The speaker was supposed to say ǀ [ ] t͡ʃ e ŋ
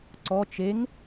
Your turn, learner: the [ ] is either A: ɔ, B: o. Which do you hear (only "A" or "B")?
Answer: A